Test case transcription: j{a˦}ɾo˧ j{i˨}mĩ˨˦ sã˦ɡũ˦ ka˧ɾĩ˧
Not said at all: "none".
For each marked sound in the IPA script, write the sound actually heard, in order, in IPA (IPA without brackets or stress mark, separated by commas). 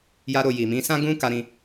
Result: a˦, i˨